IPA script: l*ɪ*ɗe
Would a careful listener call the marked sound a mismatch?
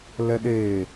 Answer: yes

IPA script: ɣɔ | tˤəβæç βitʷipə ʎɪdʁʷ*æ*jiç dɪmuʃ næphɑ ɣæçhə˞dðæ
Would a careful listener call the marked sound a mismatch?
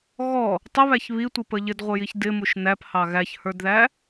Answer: yes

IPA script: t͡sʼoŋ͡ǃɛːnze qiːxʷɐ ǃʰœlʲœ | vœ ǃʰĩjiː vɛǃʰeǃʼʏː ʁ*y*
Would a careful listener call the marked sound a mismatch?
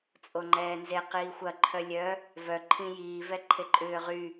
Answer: no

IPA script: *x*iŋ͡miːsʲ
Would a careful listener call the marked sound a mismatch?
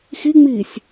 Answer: no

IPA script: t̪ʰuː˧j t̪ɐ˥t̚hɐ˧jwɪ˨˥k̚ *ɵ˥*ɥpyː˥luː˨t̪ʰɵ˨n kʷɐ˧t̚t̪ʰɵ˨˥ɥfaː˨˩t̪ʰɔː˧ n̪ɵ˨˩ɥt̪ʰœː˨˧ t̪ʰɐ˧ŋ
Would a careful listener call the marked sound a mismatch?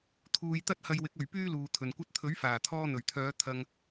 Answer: yes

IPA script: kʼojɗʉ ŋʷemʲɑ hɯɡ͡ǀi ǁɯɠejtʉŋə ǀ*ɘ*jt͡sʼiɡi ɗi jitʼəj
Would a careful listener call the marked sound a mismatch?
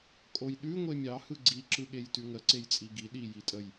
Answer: yes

